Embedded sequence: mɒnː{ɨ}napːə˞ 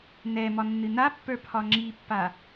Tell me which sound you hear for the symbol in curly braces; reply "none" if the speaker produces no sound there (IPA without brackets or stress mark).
ɨ